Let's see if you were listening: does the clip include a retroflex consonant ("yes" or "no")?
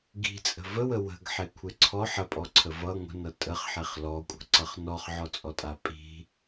no